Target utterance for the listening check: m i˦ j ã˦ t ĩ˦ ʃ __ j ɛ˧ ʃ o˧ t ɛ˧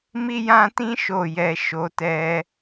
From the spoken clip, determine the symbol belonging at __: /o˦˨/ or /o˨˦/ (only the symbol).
o˦˨